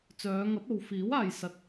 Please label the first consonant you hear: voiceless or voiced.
voiceless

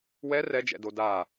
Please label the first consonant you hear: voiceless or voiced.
voiced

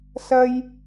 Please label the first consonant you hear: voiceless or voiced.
voiceless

